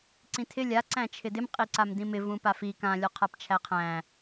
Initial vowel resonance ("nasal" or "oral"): nasal